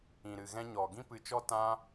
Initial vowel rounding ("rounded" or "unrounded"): unrounded